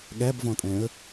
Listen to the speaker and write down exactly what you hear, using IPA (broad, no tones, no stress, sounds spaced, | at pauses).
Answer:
ɠ æ b v ɔ̃ tʼ ɛ̃ ə̯